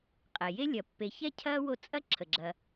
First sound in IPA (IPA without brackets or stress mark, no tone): qʼ